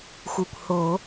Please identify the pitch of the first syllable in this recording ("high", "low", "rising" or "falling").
low